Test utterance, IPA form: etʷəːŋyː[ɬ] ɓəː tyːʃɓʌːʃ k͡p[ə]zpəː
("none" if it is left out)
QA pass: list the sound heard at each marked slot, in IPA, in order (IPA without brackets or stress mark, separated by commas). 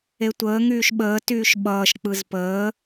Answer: ʃ, ɯ